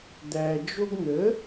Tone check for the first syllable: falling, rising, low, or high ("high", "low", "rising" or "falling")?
low